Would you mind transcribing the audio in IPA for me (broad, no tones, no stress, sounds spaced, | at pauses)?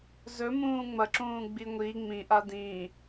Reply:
z ɵ m ũː ŋ͡m ɐ ǁ ũː ɡ͡b i ŋʷ i ŋ͡m ĩ ʔ a d ĩ